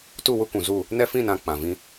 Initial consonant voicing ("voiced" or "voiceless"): voiceless